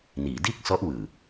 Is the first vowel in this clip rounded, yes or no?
no